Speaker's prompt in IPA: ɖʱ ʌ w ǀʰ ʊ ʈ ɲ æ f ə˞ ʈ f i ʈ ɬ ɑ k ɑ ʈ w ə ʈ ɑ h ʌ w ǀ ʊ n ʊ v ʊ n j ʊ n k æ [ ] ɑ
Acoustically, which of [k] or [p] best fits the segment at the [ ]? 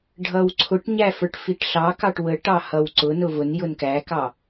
k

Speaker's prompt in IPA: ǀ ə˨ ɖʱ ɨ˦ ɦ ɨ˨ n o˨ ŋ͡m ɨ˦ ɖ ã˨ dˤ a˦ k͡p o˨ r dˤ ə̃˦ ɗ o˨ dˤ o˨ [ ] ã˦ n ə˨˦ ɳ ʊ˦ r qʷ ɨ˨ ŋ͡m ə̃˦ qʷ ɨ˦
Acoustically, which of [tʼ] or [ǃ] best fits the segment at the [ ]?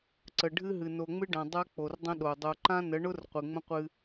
ǃ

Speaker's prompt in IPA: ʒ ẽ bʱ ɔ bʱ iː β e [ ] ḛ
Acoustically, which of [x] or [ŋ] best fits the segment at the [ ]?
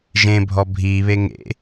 ŋ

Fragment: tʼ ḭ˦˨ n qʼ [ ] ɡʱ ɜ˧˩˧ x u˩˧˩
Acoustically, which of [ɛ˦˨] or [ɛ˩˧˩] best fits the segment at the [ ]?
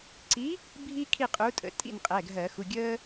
ɛ˩˧˩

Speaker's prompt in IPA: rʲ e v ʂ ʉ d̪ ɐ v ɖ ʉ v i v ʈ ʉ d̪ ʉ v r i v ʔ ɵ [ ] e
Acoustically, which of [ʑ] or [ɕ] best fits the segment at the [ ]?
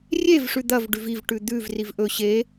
ɕ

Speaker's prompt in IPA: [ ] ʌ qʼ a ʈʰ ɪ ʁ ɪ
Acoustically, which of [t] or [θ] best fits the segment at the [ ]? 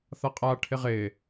θ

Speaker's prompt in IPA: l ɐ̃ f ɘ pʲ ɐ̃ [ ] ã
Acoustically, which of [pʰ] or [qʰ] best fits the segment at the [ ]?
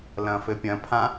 pʰ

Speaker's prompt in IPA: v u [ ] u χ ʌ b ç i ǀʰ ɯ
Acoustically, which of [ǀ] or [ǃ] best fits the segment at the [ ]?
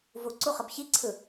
ǀ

